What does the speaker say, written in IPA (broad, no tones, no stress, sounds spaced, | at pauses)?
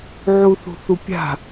ʕ u θ ṳ θ u pʲ a̤